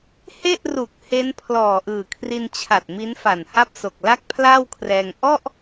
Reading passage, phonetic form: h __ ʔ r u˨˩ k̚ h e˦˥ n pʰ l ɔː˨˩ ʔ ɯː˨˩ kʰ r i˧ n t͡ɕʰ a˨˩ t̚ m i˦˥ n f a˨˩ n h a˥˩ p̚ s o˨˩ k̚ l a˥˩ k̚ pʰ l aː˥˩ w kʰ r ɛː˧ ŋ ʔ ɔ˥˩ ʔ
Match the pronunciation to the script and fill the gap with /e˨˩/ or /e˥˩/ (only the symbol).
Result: e˥˩